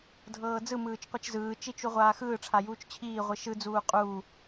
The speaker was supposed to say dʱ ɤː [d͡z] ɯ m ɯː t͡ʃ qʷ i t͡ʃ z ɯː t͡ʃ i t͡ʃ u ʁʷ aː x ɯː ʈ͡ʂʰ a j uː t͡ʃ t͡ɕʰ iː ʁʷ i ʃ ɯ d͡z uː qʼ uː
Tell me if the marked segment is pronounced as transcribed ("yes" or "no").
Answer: yes